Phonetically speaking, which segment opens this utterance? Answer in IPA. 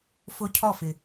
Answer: f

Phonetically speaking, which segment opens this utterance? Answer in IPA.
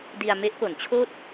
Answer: d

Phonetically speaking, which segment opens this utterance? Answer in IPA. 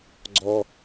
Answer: ɡ͡ǀ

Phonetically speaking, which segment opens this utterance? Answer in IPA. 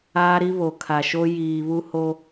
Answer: aː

